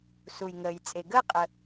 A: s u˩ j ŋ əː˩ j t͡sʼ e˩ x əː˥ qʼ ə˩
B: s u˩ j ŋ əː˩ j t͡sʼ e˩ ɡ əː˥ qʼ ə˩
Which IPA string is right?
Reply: B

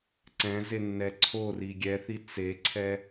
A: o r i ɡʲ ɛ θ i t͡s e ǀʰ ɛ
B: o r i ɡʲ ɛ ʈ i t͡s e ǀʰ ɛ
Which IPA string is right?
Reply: A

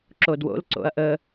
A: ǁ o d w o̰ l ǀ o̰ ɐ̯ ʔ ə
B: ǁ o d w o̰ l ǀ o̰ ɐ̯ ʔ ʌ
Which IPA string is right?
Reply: A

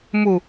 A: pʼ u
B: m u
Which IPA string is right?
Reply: B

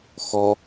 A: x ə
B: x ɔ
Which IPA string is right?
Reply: B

